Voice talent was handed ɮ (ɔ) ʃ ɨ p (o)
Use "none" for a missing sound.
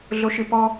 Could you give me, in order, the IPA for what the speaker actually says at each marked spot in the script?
o, ɔ

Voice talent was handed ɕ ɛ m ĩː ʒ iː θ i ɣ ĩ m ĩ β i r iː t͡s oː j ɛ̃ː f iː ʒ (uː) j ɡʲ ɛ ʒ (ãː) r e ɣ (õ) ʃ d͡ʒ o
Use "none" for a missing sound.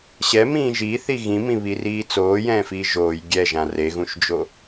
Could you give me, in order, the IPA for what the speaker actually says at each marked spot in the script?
oː, ã, ũ

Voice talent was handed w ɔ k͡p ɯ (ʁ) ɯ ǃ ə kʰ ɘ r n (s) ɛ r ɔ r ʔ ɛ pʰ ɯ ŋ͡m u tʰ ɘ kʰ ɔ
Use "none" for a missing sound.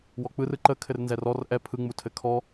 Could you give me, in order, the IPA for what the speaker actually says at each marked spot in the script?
r, z

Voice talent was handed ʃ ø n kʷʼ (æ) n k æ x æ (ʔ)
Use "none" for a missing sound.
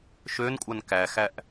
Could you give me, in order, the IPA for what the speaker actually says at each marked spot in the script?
a, ʔ

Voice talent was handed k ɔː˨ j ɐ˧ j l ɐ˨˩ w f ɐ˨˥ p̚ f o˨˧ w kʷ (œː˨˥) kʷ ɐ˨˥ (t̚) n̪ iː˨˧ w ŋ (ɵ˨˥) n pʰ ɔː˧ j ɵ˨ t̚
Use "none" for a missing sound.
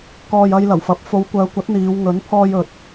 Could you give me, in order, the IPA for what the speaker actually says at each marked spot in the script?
œː˨˧, t̚, ɵ˨˥

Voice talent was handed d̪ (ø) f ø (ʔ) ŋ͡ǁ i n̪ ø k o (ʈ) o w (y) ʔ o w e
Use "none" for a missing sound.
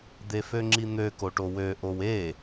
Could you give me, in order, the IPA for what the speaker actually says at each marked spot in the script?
e, none, ʈ, ø

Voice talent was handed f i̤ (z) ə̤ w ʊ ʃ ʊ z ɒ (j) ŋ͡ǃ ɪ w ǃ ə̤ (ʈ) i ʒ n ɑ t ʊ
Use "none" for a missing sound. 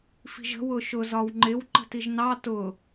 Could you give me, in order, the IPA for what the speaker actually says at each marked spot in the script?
ʒ, w, t

